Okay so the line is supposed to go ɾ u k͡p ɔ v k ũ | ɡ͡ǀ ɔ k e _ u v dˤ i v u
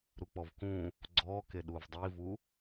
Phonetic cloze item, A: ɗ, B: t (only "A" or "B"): A